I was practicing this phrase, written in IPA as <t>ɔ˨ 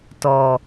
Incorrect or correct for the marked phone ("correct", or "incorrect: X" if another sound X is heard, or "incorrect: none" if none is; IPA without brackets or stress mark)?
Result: correct